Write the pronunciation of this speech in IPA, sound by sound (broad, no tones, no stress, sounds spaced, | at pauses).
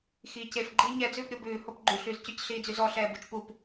x iː c e f ɡ͡ǃ iː ɲ ɛ d͡z ʉː p ɾʲ o b ʉː h o p ɡ͡ǃ y ɬ y z c y c ɬ iː d͡z y z ɔ ɬ ɛː b u t͡ʃ p u p